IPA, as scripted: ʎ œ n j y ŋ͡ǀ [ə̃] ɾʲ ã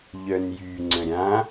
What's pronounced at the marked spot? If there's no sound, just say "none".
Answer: ə̃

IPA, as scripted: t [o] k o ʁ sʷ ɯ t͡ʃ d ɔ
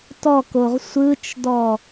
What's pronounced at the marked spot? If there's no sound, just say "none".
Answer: ɔ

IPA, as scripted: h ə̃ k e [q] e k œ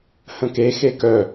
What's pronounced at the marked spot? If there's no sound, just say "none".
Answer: x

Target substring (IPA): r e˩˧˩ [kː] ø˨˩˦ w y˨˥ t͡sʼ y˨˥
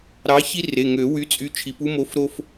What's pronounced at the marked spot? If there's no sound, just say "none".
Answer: ŋ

